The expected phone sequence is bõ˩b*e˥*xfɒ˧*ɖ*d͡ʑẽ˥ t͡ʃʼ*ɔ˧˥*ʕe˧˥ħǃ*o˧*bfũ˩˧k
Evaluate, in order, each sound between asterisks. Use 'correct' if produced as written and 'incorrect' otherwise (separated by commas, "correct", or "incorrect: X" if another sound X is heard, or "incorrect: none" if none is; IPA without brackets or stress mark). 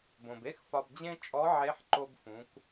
correct, incorrect: b, correct, correct